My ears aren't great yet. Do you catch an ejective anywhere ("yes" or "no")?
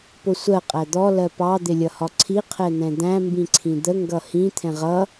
yes